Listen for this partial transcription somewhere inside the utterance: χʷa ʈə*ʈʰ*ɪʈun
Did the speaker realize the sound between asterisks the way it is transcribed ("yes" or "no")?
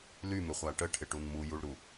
yes